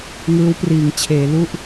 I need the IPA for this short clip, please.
ŋ ɯː˦˥ w p r iː˩˦ ŋ t͡ɕʰ eː˩˦ l u˥˩ ʔ

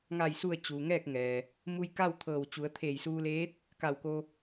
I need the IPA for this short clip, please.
ŋ a˧˩ j s u˧˩ ə̯ t͡ɕ uː˩ ŋ ɛː˥˨ k̚ ŋ ɛː˩ | m u˧ j k a˥˨ w t̪ʰ ɤː˧˩ w t͡ɕ u˩˧ ə̯ t̪ʰ eː˧˩ j s uː˧ l eː˧˥ t̚ | k a˧˩ w k o˧

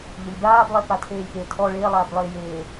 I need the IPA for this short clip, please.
ʎ ɪ lʲ b aː b lˠ e p a tʰ eː lʲ p e tʰ ɔ ɭ eː lˠ aː b lˠ eː j eː

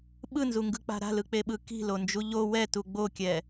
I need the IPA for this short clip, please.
ɓ ɯ n z u ŋ ɡ ɯ k͡p a̤ ɾ a̤ l ɯ k͡p e ɓ ɯ k i̤ l o n d͡ʒ u ʎ o w ɛ t u ɡ͡b o kʲ ɛ

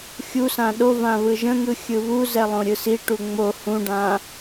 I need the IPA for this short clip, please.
xʲ u s ã ɗ o v ã β ɯ ʒ ə̃ ŋ ɯ xʲ ɯ β u z ɛ lˠ õ ɾʲ ɯ s i ʈ u ŋ͡m o h ũ ɖ ã

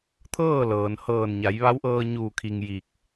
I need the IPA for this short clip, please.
t̪ʰ ɤː˥˨ l ɤː˩ n h ɤː˧˩ n ɲ a˩˧ j ʋ a˧˥ w ʔ ɤː˧ ɲ uː˧˩ kʰ i˩ ŋ j i˧˩ k̚

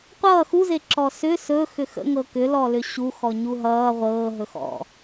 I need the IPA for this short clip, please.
qʷ ʌː x u z e ǁ ɔ s ʏ s ɵ x ʏ x ə̰ ŋ ɤ k ʏ l ɔ l ʏ ɕ u x ɔ ɲ u ɦ ʌː ʁʷ ɤː ɦ ɵ x ɔ̰

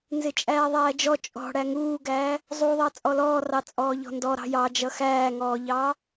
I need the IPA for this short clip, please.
n z ɪ t͡ʃʼ æː ðˤ æː d͡ʒ ɔ t͡ʃʼ ɔ̤ ɽ æ ŋ uː ɡ æː | zˤ u ðˤ ɑ t͡sʼ ɔ l ɔː r ɑ t͡sʼ ɔː ʎ ɔ̤ n d ɔ ɾ ɑ̤ j ɑ d͡ʒ ʌ x æː ŋ ɔː ʎ ɑː

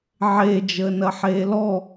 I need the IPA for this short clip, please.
ʕ e d͡ʒ əː n ɐ ħ eː l ɔ

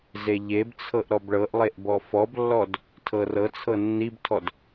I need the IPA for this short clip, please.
z e ʎ e b t͡sʰ ɤ ʔ ɾ ɔ b ɭ ɤ ʔ lˠ e ʔ b ɔ f ɔ b lː ɔ d | tʰ ɤ r ɤ t͡sʰ ɤ nː i b tʰ ɔ d

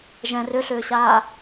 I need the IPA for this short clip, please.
ʒ ɛ̃ r ʏ ɬ ʏː ɕ aː

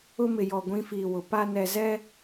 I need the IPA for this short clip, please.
ʊ˦ m ɪ˨ j ɔ˨ ɡʷ ĩ˦ f iː˨ w ʊ˨ p a˦ n ɛ˨ z ɛ˦

